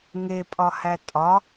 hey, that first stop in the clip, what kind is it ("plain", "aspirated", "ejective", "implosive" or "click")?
ejective